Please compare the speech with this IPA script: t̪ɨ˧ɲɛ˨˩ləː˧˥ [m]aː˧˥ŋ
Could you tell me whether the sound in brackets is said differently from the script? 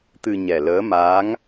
no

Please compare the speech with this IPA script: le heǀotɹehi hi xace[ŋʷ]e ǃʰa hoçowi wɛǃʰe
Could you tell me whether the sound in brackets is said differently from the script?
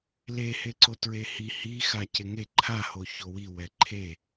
yes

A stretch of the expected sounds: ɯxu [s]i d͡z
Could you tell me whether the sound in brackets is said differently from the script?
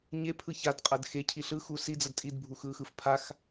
no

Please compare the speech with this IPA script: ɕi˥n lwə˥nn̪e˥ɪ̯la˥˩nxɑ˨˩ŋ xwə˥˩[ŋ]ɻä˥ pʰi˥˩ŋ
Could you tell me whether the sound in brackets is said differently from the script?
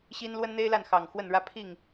yes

